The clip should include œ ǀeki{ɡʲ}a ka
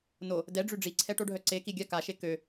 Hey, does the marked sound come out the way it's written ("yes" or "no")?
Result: yes